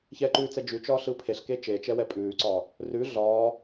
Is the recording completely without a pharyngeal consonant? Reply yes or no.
yes